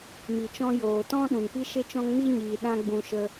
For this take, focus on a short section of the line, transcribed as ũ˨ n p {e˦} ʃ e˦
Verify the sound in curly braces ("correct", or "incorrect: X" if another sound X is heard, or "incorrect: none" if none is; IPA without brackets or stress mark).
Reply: incorrect: i˦